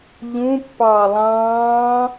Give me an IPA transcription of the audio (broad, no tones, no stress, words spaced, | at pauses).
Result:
ʎũ pːɑːlˠɑ̃ː